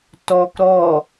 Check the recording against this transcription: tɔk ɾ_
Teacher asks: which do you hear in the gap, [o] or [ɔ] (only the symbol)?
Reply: ɔ